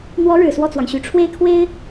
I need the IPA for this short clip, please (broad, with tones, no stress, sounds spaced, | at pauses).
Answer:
n̪ w ɔ˧˥ ɻ ɻ̩˨˩ s w ɔ˥˩ t͡s w ɑ˩ ŋ ɕ y˨˩ ʈ͡ʂʰ w e˥˩ ɪ̯ kʰ w e˥ ɪ̯